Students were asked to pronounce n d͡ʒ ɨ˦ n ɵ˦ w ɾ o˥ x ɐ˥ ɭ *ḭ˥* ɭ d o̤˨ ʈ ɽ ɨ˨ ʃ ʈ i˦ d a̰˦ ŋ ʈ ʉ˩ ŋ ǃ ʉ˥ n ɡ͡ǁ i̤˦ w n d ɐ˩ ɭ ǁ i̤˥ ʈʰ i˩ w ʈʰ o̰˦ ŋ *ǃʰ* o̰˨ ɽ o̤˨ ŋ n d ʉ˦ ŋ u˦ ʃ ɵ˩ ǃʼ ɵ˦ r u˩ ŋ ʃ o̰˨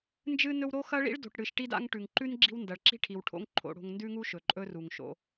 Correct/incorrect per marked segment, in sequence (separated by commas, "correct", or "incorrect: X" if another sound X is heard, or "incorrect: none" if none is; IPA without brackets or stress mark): correct, correct